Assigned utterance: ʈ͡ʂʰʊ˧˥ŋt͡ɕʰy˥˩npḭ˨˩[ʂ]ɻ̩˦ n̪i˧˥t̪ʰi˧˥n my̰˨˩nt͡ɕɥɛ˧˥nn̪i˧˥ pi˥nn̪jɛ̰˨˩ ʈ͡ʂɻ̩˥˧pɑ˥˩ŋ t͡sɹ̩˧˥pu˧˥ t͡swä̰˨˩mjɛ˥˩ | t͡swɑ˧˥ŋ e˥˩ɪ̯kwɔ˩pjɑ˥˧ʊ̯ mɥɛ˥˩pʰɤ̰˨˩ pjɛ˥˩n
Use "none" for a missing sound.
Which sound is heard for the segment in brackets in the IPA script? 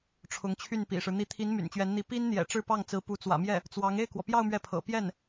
ʂ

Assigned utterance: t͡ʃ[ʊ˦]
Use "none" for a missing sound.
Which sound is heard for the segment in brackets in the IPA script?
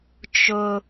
ʊ˦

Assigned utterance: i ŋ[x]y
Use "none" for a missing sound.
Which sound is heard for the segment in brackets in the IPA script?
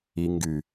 ɡ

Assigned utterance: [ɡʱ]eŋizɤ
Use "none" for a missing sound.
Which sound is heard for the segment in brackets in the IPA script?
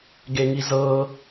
ɡ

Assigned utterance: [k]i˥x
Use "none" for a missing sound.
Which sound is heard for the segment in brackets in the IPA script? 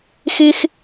x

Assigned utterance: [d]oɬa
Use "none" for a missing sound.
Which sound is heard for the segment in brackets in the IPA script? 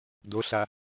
d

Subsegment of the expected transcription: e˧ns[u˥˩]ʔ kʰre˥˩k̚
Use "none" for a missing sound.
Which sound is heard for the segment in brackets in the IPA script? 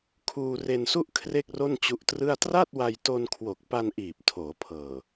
u˥˩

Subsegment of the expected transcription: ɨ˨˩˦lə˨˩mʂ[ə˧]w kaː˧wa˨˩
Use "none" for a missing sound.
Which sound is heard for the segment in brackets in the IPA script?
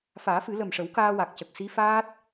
ə˨˩˦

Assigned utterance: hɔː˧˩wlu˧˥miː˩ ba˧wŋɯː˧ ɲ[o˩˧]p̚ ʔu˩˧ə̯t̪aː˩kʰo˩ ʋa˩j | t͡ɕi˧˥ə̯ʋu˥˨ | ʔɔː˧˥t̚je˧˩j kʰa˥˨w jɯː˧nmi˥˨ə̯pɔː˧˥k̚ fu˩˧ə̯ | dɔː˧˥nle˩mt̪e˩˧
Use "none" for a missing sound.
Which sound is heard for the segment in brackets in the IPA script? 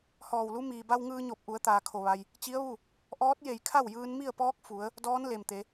o˧˩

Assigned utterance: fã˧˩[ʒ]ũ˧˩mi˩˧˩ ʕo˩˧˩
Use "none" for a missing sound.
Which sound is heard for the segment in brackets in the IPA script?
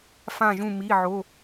ʒ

